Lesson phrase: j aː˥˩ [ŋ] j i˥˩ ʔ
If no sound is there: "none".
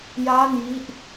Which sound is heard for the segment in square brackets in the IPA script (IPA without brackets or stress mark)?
n